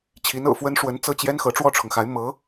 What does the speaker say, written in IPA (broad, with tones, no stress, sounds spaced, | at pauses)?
t͡ɕʰ i˧˥ n ɤ̰˨˩ f w ə˥ n ʂ w ə˧˥ n t͡s ɤ˥˩ t͡ɕ j ɛ˥ n x ɤ˧˥ ʈ͡ʂ w ɔ˥˩ ʈ͡ʂʰ ʊ˩ ŋ x a˧˥ ɪ̯ m ɤ˧˥